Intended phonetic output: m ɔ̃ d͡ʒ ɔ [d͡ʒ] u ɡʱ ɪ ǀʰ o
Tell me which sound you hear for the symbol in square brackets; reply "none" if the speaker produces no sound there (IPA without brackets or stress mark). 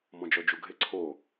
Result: d͡ʒ